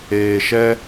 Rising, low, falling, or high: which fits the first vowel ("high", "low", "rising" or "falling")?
low